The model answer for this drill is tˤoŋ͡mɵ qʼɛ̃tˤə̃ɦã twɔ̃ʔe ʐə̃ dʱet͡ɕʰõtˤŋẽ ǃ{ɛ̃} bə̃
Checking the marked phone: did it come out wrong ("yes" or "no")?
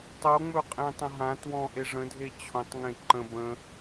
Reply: yes